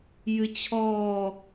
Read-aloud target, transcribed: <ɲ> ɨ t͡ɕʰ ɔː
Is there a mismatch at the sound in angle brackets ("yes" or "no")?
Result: yes